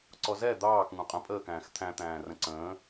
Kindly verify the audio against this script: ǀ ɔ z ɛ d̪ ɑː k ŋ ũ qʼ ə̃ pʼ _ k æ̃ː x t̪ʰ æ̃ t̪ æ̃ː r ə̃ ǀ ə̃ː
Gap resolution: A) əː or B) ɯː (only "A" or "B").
A